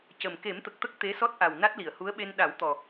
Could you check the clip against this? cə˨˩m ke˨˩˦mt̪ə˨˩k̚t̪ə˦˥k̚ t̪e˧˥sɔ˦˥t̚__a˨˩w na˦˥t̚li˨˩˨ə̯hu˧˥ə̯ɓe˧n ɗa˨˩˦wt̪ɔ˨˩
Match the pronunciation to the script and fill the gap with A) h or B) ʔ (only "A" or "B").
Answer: B